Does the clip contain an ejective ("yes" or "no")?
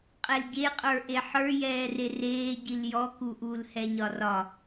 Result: yes